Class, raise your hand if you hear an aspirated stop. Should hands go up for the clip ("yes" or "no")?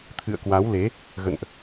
yes